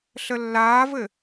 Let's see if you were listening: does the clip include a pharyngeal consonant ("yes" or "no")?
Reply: no